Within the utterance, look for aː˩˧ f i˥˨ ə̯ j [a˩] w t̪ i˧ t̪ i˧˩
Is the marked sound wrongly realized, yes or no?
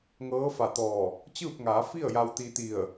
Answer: yes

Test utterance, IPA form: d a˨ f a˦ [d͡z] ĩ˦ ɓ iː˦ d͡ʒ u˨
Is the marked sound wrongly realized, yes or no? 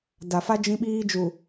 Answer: yes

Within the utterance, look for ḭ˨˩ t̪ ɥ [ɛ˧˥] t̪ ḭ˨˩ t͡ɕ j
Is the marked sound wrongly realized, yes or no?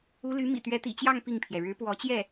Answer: no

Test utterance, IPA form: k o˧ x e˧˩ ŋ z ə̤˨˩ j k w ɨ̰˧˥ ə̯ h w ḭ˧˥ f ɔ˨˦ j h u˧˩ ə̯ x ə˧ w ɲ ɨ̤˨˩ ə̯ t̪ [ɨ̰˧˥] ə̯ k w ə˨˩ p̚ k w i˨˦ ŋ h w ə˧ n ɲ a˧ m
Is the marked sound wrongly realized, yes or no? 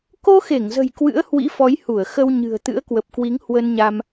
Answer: no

